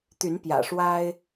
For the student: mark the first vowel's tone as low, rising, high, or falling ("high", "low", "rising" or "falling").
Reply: rising